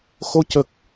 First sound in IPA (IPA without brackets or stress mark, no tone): x